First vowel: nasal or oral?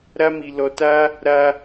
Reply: oral